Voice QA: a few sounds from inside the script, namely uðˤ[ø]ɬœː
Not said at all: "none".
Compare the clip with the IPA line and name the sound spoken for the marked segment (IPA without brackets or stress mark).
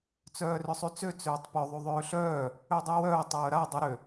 øː